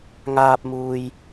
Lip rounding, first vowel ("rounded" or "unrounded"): unrounded